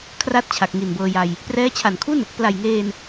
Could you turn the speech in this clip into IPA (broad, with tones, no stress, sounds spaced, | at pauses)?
kʰ r a˦˥ t̚ t͡ɕʰ a˨˩ k̚ ŋ i˨˩ n b ɤː˧ j a˧ j | p r ɛː˦˥ t͡ɕʰ a˨˩ n kʰ u˥˩ n | p l a˨˩ j ŋ eː˧ n